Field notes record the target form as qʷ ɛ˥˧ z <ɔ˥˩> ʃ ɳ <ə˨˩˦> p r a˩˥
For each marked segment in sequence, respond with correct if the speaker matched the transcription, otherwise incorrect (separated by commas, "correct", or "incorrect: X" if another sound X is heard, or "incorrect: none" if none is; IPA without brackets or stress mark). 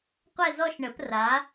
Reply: incorrect: ɔ˥˧, correct